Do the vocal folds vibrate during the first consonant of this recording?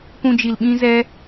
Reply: no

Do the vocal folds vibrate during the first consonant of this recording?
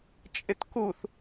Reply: no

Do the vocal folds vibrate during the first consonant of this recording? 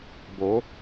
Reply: yes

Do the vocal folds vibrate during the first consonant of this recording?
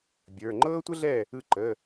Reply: yes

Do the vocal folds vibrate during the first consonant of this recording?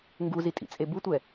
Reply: yes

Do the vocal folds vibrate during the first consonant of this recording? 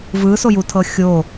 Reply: yes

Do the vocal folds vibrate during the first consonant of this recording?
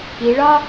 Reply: yes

